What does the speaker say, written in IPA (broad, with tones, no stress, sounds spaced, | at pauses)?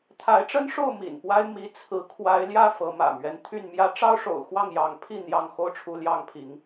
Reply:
t̪ʰ a˨˦ ɪ̯ ʈ͡ʂ ə˦ n ʂ o˥˨ ʊ̯ m ḭ˨˩ n p w a˦ ɪ̯ m i˨˦ t͡sʰ ɹ̩˨˦ kʰ w a˨˦ ɪ̯ l j ä˥˨ f ɤ˨˦ m ä̰˨˩ m ɥ ɛ˦ n t̪ʰ y˥˨ n m j ä˦ ʈ͡ʂ ɑ˦ ʊ̯ ʂ o̰˨˩ ʊ̯ x w ɑ˥˨ ŋ j ɑ˨˦ ŋ pʰ i˥˨ n̪ j ɑ˥˨ ŋ x o˦ ʊ̯ ʈ͡ʂʰ u˨˦ l j ɑ˥˨ ŋ pʰ i˨˦ ŋ